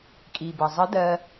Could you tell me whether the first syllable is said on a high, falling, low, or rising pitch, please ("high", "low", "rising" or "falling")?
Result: low